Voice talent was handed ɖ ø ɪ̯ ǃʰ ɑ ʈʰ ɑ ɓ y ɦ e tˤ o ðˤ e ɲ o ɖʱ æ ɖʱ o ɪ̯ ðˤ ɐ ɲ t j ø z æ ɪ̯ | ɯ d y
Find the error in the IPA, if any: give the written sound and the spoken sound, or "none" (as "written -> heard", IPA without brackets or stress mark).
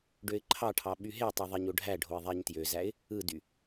ɐ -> æ